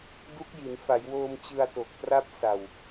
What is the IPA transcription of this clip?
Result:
du˦˥k̚ji˩˦n fa˩˦jwoː˧m t͡ɕɯ˧a̯to˨˩k̚ tra˥˩p̚ sa˨˩w

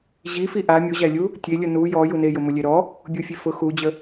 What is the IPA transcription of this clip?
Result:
ʑifi ʔa mʲuʑælʲu | tʲe lʲʊnu jɔ junejʊ mʊlʲeɾɔ | bʲufʲefʊ xud͡ʑə

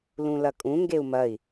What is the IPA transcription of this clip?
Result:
lũlɐkʼũ ŋɡeu̯mɐi̯

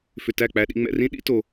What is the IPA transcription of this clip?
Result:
fʏ˧tæ˦˨ k͡pæ˧ɗḭ˧ŋ͡mɛ̰˧rĩ˦ ɗḭ˦to˧

